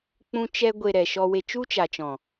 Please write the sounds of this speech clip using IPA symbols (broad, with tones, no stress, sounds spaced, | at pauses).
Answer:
k͡p ũ˧ t͡ʃ ɛ˧ ɡʷ e˨ ɾ ɛ˨ ʃ ɔ˧ w e˧ t͡ʃ u˦ t͡ʃ a˨ t͡ʃ ɔ̃˨